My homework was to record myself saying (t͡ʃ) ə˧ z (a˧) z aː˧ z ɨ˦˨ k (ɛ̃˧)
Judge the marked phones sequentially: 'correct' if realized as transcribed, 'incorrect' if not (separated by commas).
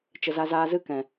correct, correct, incorrect